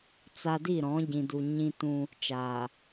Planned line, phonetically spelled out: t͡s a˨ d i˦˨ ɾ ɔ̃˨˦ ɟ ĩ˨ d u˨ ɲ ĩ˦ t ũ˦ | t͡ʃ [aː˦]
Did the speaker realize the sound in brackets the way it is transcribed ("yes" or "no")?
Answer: no